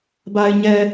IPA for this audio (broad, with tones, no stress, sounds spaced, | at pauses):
b a˨ ɪ̯ ɲ ɛ˨